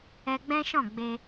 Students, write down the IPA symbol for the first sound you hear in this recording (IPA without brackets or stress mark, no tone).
ɛ